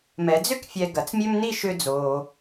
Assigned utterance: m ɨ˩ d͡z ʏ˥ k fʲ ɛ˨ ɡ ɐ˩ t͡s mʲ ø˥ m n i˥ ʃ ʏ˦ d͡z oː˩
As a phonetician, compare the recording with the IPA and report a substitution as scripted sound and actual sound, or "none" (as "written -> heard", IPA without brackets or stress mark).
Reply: ɨ˩ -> ɛ˩